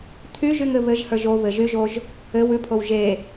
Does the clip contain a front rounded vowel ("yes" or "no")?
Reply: yes